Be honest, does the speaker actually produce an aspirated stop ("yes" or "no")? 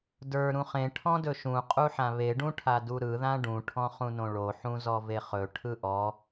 yes